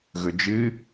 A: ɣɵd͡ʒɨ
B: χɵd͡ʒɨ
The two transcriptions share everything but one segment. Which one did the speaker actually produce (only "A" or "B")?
A